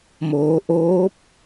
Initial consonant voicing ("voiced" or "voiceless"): voiced